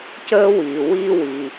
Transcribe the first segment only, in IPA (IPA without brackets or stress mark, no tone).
c